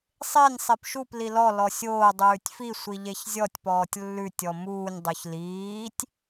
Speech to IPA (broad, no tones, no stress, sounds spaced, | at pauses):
sˤ e nʲ sˤ e p ʃ u p l i l ɔ l ɔ sʲ oː dˤ ʉː tʲ f i sʷ i ʎ e ç zʲ ɔ tʲ p ɔː tʲ lː ʉ tʲ ɔ m uː nʲ dˤ o ç l iː tʲ